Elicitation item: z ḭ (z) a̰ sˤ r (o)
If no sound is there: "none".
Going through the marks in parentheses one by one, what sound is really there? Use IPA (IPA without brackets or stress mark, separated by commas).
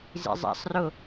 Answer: zˤ, o